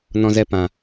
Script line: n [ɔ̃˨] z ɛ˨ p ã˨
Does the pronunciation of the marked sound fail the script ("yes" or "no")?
no